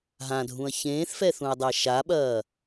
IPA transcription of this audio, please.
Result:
ɦ ã dʱ ũ ɐ̯ ç ẽː θ f ɛ θ ũ ɐ̯ dˤ æ ʃ a ɓ ɐː

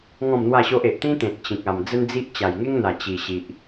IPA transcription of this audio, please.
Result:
ŋ ɔ̃˥˧ m n̪ w a˥˧ ɕ o˦ ʔ e˨ ʔ t̪ ĩ˦ t̪ ẽ˨ t̚ t͡ɕ ĩ˨ k̚ a˨˩ m d͡z ə˦ n d͡z i˦ ʔ t͡ɕ a˨˩ j ŋ e˦ ŋ n̪ a˨˩ t͡ɕ i˨˩ ɕ i˨ ʔ

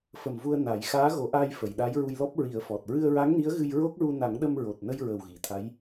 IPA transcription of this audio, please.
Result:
f ə˨˩ m v u˧ ə̯ n a˨˩˦ j x aː˧˥ ɣ o˨˩˦ ʔ a˧ j f ə˨˩˨ j ɗ a˧˥ j ɹ u˧ j l ɔ˦˥ p̚ ɹ i˨˩˦ ə̯ f ɔ˨˩ t̚ ɹ ɨ˧ ə̯ ɹ a˧˥ ŋ n i˧˥ ə̯ ɣ ɨ˧ j ɹ o˦˥ k̚ ɹ u˧ n a˨˩˦ ŋ ɗ ə˧ m ɹ o˨˩ t̚ n ə˧ j ɹ ə˨˩ w ɣ i˨˩˨ t̪ʰ a˧˥ j

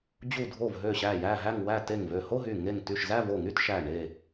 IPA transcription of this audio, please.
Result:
d͡ʑ u˧˩ dʱ o˧˩ v ɦ ø˧˩ ɕ æ˧˩ j æ˧˩ ɦ æ˧˩ ŋ w æ˧˩ t e˧˩ ŋ v ø˧˩ h o˥˧ ɦ y˧˩ ŋ e˧˩ ŋ t y˧˩ ʃ z æ˥˧ v o˧˩ ŋ y˥˧ t ʃ æ˧˩ ɳ e˧˩

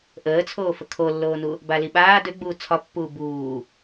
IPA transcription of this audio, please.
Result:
ʔ əː t͡sʰ oː f ə kʰ o lː oː n u | b a l i ɓ aː d ø ɡ͡b uː t͡sʰ ɒ pː uː b uː

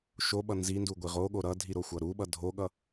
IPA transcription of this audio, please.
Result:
ʃ o ɓ ʌ n z i n d u ɡʷ i ʁ o ɠ o ɾ ʌ dʱ i ɾ o xʷ ʌ ɾ u ɓ ʌ dʱ o ɠ ʌ

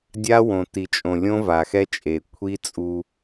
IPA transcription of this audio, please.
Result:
dʲ a˦ w õ˨ t i˨ t͡ʃʼ õ˨ lʲ õ˦ v a˨ x ɛ˦ t͡ʃʼ e˨ kʷʰ i˦ t͡sʼ u˦

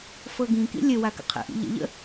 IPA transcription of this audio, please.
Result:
f ɤ ɡ ĩ k ḭ lʲ ə w a k ə̰ qʰ ə̰ ʔ ḭ ʎ ə̰ ʎ ə̰

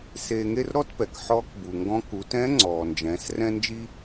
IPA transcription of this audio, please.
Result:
s eː˧ ŋ e˥ r ɾ ɔ˥ t p ɛ˩ k ħ ɔː˧˥ k b u˩ ŋ ɡ ɔ̃˧˥ k u˩˧ t ɛ̃˧˥ ŋ͡ǀ ɔː˩ n d͡ʒ ɛ̃ː˩˧ s r ɛ̃˥ n d͡ʒ i˥

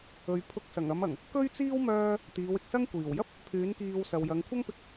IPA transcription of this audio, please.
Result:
ɵ˨ ɥ pʰ ʊ˧ k̚ s ɐ˨˩ ŋ ɐ˨˧ m ɐ˨˩ ŋ | k ɵ˥ ɥ t͡s iː˥ w m œː˥ | t̪ iː˨˧ w ɪ˨ k̚ s ɐ˥ ŋ kʷ iː˨˩ w j ɐ˥ p̚ | pʰ yː˨˥ n k iː˧ w s ɐ˨ w j ɐ˨˧ ŋ kʷʰ ɐ˥ ŋ p ɪ˧ k̚

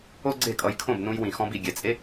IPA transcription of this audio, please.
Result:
o˦ ɡ͡ǀ e˦˨ kʼ ʌ˧ j kʰ õ˦˨ b n ũ˧ j w ĩ˨ x ɔ̃˧ b i˨ ɡʲ ɛ˨ t͡sʼ e˦

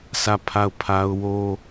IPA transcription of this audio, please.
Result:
s ä˦˨ pʰ a˦˨ ʊ̯ pʰ a˦ ʊ̯ w o˦

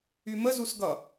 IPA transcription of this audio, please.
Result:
y m ə z u s ɡ ʌ

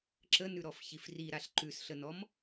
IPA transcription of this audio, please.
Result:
ǁ ə n ʉ ɾ ɔ f ç i f r i ɾ a ɬ ǃ ʉ s ɬ ə n ɔ m

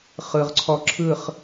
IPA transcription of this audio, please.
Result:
χ ɯ˨ ʁ ǀʰ ɔ˧ ǁʰ ɯ˦˨ χ

